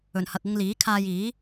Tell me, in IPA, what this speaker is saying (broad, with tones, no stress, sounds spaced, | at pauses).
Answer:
ɵ˨˩ n h ɐ˨ k̚ ʊ˧ ŋ l iː˨˥ kʰ aː˧ j iː˨˥